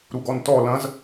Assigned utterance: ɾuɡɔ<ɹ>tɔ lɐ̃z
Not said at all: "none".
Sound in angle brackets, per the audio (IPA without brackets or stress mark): n